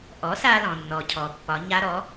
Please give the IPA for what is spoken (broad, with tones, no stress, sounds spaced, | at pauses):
ʔ ɔ˩˥ s a˧ l ɔ̃˩ nː ɔ˩ cʰ ɔ˩ pː ɒ˩˧ ɲ a˦˥ ɾ ɔ˩˥